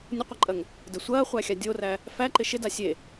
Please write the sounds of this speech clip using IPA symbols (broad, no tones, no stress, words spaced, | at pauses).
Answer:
nʲɐqʷɐǃʼɐŋ | də sʷɐːχʷæxʲa dʲoræ | fæǃɪ ʃɪda sʲe